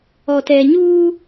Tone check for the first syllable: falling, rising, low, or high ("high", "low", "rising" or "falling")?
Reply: low